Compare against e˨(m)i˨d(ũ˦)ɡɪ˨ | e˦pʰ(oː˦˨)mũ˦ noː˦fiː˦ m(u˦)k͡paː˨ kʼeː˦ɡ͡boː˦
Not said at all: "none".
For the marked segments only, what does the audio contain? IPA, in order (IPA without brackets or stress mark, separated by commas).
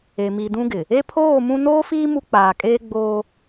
m, ũ˦, oː˦˨, u˦